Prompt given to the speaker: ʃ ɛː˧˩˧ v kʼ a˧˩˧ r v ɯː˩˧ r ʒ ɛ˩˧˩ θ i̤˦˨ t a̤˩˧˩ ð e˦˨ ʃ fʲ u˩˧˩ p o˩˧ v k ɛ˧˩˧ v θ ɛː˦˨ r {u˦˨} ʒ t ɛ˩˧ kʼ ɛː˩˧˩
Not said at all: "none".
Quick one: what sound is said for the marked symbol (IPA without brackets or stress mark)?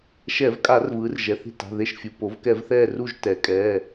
u˦˨